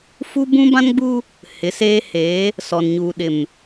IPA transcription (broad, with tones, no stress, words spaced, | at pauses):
fu˦bũ˦bã˦nɡ͡bu˦ | hɪ˨˦seː˦heː˨˦ | sɔ˨nɲuː˨ɗɪ˨m